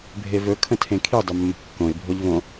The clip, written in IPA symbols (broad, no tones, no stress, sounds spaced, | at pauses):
bʱ e v ɵ kʰ ə̃ tʰ ẽ kʰ i dˤ ɵ mː ə̤ kː õ ɪ̯ bʱ o ʎ v õ